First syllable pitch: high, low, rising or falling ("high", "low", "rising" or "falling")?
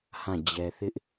falling